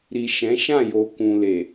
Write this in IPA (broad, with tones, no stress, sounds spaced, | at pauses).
ɾ i˨ ʃ ɛ̃˨˦ ʃ ã˦˨ j o˨ k ũ˨ l e˨